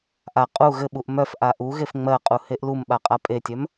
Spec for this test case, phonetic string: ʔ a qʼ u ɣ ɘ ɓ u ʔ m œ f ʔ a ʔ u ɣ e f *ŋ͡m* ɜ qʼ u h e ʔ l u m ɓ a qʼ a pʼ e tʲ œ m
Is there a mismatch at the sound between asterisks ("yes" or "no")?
no